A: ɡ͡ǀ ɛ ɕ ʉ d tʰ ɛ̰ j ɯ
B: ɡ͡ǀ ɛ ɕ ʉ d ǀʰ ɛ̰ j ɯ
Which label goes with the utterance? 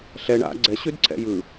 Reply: B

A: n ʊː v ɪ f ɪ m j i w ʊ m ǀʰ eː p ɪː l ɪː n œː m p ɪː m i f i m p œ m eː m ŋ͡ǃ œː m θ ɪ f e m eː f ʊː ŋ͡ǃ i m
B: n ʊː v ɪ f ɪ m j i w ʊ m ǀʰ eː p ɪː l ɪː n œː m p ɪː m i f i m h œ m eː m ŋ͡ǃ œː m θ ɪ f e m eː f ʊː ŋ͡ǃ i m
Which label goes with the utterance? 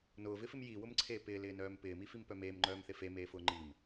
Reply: A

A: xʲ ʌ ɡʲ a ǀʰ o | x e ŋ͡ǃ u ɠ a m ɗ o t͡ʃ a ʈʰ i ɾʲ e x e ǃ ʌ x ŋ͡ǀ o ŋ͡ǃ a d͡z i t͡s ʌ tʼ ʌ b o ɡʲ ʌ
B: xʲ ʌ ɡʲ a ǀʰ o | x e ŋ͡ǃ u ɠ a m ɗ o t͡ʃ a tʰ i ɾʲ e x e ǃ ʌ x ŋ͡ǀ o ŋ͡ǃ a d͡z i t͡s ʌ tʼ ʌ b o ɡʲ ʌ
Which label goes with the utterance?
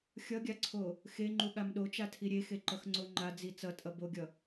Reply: B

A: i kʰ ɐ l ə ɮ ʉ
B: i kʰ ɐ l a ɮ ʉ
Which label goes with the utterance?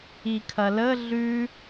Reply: A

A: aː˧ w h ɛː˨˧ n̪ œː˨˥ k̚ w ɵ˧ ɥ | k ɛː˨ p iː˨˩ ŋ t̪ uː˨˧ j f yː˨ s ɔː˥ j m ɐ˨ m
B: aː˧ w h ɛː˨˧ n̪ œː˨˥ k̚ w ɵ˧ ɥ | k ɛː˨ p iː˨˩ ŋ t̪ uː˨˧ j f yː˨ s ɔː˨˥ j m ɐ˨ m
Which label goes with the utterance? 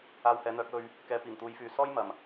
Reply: A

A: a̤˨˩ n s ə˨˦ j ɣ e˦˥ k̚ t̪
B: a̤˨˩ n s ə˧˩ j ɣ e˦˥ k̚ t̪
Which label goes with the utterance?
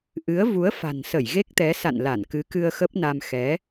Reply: B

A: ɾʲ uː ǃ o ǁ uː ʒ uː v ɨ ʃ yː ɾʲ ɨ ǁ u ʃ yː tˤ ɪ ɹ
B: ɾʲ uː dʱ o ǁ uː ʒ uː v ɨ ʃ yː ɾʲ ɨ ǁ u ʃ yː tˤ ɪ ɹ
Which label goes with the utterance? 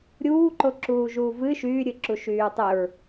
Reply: A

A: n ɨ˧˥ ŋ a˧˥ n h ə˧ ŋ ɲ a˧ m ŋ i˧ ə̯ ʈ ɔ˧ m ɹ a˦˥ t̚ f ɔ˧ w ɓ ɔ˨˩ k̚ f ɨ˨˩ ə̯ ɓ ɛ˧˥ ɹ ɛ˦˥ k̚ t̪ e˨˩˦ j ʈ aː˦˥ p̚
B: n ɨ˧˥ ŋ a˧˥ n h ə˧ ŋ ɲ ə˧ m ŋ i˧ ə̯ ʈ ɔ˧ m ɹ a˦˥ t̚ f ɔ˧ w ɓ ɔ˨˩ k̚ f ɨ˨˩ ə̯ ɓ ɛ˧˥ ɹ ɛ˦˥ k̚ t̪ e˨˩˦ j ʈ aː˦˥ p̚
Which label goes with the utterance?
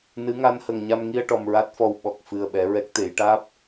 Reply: A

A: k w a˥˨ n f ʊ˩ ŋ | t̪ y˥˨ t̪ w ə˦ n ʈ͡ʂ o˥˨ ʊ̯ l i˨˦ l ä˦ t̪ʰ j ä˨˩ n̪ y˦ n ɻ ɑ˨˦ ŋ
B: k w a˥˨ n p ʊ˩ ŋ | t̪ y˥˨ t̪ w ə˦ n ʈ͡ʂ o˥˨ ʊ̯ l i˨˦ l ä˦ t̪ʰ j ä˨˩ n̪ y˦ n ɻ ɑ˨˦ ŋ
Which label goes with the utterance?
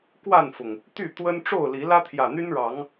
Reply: A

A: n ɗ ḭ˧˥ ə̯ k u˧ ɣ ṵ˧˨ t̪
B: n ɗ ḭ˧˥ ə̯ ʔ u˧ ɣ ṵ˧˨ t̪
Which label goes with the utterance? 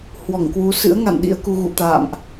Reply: A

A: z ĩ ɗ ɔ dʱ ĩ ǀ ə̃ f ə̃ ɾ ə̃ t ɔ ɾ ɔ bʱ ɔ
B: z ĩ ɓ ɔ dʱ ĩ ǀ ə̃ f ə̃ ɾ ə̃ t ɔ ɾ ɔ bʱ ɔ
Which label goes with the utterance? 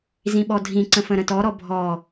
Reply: B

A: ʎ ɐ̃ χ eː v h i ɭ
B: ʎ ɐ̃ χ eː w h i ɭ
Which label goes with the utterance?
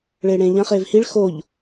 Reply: A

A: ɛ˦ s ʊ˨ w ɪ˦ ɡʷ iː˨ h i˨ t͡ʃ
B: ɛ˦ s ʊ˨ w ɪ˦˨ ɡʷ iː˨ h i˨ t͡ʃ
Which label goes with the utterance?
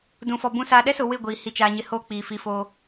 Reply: B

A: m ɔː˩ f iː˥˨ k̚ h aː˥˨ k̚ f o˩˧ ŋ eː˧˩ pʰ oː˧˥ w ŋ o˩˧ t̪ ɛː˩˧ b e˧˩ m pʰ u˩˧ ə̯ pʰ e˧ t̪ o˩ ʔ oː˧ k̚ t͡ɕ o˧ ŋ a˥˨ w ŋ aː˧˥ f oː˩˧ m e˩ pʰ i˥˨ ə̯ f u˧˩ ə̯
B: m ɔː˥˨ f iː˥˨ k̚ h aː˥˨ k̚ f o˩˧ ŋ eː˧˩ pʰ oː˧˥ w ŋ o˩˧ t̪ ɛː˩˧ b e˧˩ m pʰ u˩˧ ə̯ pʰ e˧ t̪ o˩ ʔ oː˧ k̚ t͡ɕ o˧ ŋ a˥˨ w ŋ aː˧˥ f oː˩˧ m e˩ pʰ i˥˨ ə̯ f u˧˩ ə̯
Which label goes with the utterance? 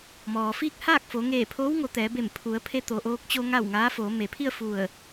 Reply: A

